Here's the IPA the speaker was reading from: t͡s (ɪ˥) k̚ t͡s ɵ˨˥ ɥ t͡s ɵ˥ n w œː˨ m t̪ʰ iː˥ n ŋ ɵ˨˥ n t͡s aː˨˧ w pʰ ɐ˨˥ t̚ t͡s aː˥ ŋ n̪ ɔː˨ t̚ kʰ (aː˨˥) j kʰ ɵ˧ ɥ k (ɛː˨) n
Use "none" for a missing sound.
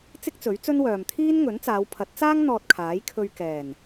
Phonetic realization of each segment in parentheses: ɪ˥, aː˨˥, ɛː˨˩

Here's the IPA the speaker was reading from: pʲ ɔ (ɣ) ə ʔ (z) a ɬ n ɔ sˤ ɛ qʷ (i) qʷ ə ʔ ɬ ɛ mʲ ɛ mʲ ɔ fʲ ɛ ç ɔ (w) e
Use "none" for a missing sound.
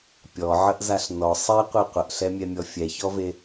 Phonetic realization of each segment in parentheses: ʕ, z, i, v

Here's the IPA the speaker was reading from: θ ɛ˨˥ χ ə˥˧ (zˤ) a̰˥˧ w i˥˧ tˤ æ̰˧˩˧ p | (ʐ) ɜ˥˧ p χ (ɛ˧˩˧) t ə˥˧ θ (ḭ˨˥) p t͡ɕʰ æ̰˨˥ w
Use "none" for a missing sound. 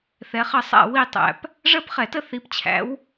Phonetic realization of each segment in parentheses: sˤ, ʐ, ɛ˧˩˧, i˨˥

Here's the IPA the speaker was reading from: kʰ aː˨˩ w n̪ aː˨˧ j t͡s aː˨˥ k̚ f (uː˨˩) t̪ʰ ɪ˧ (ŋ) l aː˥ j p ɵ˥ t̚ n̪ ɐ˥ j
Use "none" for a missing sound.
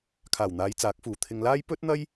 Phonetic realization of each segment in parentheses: uː˨˩, ŋ

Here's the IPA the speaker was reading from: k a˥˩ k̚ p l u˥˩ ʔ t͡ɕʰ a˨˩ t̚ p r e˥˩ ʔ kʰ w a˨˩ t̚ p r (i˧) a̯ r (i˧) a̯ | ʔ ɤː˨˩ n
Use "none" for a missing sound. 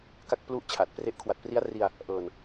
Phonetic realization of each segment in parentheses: i˦˥, i˧

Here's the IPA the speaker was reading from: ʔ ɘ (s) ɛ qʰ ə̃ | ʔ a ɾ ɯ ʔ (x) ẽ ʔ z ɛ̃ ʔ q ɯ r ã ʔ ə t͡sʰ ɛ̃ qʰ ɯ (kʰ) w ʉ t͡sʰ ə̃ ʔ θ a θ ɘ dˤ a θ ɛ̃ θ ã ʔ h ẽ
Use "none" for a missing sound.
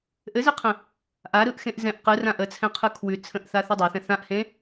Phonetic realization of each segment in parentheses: z, x, kʰ

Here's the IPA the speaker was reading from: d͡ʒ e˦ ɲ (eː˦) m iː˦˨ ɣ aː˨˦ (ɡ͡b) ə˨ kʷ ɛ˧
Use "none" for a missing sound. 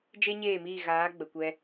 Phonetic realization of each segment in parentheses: eː˦˨, ɡ͡b

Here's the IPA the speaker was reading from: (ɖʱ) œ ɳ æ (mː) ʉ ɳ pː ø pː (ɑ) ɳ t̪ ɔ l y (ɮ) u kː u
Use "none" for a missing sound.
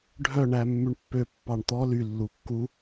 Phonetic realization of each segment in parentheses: ɖʱ, mː, ɑ, lː

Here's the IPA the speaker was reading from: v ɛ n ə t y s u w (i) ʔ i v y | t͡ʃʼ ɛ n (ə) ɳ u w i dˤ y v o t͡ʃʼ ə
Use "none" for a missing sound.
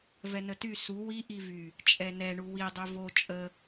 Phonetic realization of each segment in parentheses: i, ɛ

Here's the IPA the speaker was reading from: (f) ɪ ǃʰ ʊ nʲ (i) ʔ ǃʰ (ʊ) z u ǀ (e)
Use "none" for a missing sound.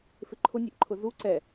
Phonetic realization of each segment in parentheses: f, e, ʊ, ɛ

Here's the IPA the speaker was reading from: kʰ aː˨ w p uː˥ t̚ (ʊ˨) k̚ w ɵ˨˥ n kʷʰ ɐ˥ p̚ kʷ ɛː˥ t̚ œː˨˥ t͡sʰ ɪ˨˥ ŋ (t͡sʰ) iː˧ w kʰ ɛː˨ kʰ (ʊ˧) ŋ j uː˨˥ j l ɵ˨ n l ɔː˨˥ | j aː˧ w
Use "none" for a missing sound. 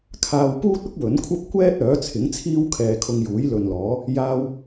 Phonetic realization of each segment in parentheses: ʊ˥, t͡sʰ, ʊ˧

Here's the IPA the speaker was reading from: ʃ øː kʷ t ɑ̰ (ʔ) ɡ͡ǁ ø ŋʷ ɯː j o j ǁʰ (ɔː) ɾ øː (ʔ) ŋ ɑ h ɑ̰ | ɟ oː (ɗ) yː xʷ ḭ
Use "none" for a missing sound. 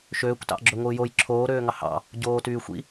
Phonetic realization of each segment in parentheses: ʔ, oː, none, t

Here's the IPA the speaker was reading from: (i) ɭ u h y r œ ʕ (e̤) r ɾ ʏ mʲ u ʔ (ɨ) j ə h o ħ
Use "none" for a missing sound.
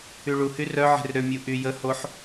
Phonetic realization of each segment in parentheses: y, e̤, y

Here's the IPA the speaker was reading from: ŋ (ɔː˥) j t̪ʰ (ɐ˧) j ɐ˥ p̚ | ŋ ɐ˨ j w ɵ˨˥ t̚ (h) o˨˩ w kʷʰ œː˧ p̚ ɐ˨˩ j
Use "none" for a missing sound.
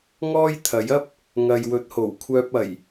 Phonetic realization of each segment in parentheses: ɔː˥, ɐ˨˥, h

